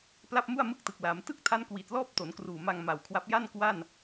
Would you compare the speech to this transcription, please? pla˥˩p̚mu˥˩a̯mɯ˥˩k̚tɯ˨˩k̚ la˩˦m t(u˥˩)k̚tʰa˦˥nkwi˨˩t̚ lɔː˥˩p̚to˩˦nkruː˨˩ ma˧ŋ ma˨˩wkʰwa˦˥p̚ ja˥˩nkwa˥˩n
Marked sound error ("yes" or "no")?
yes